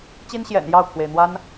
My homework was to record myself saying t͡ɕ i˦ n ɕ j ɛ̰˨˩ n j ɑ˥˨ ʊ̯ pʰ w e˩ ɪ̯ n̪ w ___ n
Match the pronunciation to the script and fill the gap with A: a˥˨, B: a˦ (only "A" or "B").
B